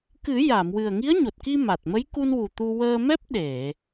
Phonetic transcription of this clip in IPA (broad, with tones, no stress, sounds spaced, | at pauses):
k ɨ˨˩˦ j a˨˩˨ m w ɨ˨˩ ə̯ ŋ i˧˥ ə̯ ɲ o˨˩ t̚ k i˧ m a˨˩ t̚ m ə˧˥ j k u˧ n w u˨˩ t̪ u˧ w əː˧ m ɛ˦˥ p̚ ɗ e˨˩˨